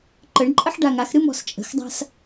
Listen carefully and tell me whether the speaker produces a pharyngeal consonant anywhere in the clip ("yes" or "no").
yes